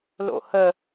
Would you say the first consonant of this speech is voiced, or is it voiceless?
voiced